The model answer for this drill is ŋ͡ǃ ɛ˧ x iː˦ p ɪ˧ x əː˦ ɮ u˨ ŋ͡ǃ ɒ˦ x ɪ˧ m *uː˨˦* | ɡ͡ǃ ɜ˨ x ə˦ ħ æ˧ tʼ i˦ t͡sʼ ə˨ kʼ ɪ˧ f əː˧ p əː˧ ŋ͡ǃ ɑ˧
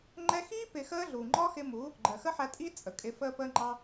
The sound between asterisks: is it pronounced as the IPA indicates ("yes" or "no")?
no